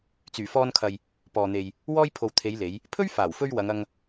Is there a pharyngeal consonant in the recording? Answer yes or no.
no